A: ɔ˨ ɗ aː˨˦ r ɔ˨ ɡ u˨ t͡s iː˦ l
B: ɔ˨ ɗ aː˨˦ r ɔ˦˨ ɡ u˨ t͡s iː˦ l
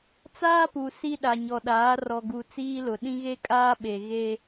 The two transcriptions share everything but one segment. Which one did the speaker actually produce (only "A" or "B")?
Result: A